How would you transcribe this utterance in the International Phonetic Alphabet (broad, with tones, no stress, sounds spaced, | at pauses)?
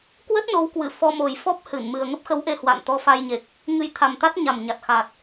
k w ə˦˥ t̚ n o˨˦ w k w ɨ˧˩ f ɔ˧ m o˨˩ j f ɔ˦˥ p̚ h ɨ˧˩ n m ɨ˨˩ ə̯ ŋ ə˦˥ p̚ x ə˨˦ w ʔ e˧ h w a̰˧˨ n t̪ ɔ˧ f a˧ j ɲ e˨˩ k̚ | ŋ ɨ˧ j t̪ʰ a˨˩ m t̪ a˦˥ t̚ ɲ a˨˩ m ɲ a˨˩ t̚ x a˨˩ t̚